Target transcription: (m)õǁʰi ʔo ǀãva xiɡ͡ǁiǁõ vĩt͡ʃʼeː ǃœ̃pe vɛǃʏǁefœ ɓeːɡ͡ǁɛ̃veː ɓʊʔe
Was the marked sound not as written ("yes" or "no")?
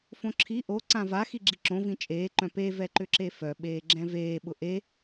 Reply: yes